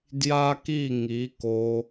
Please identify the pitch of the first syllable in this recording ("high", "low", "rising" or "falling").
high